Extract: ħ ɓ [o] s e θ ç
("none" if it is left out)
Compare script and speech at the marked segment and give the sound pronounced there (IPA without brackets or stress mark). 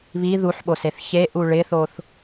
o